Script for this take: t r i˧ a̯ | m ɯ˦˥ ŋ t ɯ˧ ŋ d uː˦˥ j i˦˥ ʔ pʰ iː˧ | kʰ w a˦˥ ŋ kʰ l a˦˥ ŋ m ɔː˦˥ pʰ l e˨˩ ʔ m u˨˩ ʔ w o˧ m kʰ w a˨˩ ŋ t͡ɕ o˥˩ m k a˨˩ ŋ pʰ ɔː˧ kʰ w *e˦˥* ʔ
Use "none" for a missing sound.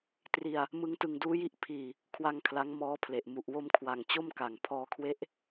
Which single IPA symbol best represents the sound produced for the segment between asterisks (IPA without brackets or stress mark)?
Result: e˦˥